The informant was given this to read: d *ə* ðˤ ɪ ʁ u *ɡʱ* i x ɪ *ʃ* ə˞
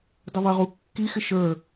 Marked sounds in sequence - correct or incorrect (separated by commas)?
correct, incorrect, correct